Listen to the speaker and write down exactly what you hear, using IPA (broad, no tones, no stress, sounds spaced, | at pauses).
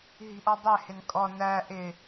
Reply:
ɦ i̤ ʔ ɔ dˤ ɛ h ɪ n kʼ ɔ n æ ʔ ɪ